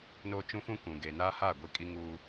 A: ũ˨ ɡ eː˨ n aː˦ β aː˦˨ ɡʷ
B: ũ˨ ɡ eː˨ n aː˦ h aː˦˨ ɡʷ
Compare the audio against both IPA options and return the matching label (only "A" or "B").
B